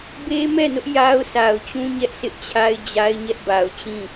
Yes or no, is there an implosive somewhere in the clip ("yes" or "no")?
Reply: no